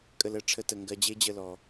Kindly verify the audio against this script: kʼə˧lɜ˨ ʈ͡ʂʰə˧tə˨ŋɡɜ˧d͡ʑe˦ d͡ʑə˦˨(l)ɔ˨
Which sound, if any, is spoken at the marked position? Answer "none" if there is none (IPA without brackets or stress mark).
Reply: l